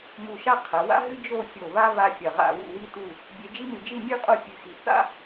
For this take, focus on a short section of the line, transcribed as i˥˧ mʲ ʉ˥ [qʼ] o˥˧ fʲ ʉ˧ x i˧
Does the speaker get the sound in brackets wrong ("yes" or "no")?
no